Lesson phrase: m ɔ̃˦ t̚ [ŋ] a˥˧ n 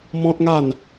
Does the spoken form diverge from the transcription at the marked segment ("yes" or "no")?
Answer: no